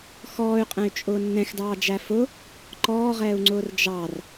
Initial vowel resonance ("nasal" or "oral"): oral